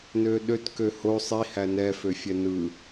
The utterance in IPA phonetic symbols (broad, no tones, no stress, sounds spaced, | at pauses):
n ø ɗ ø t k ø h o sˤ i h æ n ɛ f ø fʲ ɛ n ɯ